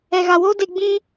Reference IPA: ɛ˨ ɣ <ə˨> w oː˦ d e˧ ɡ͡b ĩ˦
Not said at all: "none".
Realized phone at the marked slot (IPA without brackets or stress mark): a˨